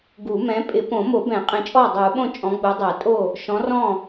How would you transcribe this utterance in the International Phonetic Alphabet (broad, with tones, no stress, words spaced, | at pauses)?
ɡu˨˩˦mɛ̃˨˥ pʼɪ˨˩˦põ˨˩˦mo˨˩˦bɛ̃˨˩˦ qʼẽ˨˥t͡ʃʼɔː˥˩dˤuː˨˩˦ɓõ˥˩ t͡ʃʼɔ̃˨˥ɡ͡bu˨˥dˤɛ˨˩˦ tʼo˥˩ | ʃɔ̃˨˥rɔ̃˥˩